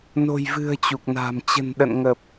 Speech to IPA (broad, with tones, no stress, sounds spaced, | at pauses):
n o̤˨˩ j v ɨ̤˨˩ ə̯ t͡ɕ u˨˩ k̚ n a̤ː˨˩ m t͡ɕ ə̤˨˩ n ɗ ə̰˧˨ n ŋ ə˨˩ p̚